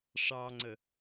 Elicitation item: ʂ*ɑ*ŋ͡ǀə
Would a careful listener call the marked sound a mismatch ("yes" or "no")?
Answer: no